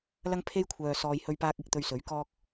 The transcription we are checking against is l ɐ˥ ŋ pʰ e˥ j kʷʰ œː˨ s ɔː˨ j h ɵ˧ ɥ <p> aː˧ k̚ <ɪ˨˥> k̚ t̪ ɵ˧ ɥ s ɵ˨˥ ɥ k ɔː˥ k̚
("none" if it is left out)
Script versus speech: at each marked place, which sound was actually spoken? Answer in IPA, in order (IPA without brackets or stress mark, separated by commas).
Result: p, ɪ˨˥